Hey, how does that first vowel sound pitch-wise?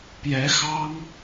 rising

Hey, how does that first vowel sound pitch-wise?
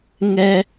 high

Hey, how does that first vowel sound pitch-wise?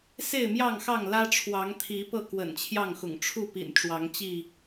falling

